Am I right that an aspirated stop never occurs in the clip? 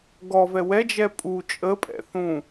yes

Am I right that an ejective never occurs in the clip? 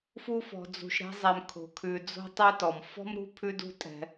no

